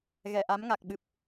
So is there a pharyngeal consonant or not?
no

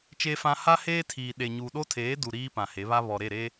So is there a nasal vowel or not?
yes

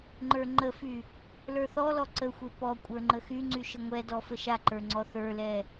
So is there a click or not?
yes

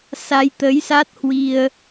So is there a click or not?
no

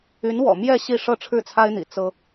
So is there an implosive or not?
no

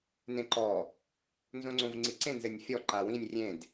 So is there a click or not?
yes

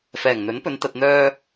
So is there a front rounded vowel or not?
yes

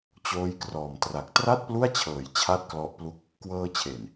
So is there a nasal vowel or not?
no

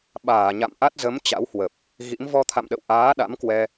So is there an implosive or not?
yes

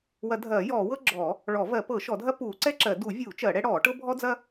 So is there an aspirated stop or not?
no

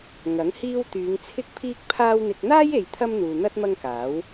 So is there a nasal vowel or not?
no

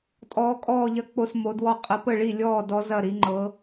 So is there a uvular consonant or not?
yes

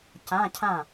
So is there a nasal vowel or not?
yes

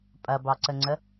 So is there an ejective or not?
yes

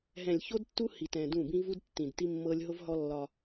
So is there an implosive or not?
no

